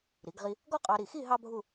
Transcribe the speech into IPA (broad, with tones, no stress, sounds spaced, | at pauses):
ɾ i˩˧ ɡ ʁ i˧ | ɡ ɔ˥ qʼ ɑ˧ ɾ i˧˩ x i˥˧ ɦ ɑ˥ bʱ u˥˧